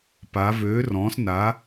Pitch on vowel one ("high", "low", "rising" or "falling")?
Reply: rising